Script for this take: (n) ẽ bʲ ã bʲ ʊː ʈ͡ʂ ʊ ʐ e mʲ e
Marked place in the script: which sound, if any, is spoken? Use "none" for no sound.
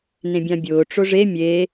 n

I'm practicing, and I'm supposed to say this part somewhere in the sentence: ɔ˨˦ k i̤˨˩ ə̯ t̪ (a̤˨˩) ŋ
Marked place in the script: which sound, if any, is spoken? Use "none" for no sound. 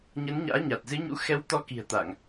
a˧˩˨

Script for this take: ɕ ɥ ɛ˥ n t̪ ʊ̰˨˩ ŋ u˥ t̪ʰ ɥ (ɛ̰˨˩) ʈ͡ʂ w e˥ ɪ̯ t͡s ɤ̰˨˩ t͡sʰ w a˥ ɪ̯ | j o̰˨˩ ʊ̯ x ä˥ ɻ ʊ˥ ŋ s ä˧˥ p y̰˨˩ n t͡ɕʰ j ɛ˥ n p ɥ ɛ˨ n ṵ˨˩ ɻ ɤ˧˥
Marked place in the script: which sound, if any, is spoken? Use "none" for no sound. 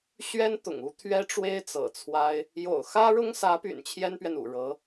ɛ˥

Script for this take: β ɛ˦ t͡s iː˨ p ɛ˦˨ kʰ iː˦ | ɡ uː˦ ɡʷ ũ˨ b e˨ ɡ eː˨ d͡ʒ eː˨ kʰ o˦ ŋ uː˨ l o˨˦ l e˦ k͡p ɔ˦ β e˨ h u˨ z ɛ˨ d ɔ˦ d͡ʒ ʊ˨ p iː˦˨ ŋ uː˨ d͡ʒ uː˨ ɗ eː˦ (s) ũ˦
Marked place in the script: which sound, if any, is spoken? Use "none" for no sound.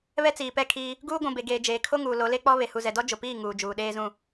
z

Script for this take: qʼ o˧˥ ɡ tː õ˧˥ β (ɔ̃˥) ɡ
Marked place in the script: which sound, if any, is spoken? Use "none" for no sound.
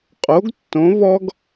ɔ˥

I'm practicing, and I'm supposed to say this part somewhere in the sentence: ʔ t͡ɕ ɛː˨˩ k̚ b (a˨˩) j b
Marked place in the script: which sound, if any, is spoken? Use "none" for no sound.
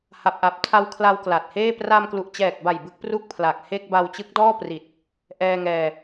a˨˩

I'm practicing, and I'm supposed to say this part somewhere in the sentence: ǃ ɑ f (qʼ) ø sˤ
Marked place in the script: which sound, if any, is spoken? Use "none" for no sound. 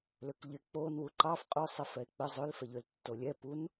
qʼ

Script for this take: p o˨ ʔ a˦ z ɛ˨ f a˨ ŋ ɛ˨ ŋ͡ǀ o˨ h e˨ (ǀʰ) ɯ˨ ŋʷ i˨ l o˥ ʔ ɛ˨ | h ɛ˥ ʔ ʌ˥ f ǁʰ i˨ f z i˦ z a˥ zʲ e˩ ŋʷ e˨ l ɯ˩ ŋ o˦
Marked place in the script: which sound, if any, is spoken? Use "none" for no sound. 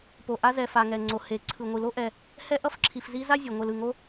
ǀʰ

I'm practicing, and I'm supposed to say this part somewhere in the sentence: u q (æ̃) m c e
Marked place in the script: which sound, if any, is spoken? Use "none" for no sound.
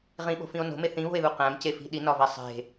æ̃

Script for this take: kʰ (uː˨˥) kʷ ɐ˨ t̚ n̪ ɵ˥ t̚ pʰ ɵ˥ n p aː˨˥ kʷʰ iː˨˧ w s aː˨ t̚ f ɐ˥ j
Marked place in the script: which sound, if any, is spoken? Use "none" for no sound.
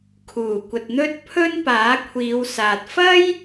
uː˨˩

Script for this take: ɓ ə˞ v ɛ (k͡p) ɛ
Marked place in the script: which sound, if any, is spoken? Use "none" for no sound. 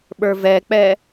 k͡p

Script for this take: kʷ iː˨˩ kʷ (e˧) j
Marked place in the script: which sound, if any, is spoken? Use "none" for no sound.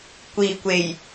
e˨˩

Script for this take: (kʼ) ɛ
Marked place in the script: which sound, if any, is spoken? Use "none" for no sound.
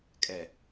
kʼ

